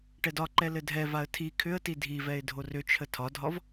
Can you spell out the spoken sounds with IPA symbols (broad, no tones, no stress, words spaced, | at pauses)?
ʈɛdɒǃɛ lɘdʱɛvaə̯ tʰi kʰʏə̯ti dʱivɛɪ̯ dʱorʏt͡ʃʰə tʰɒdʱɒv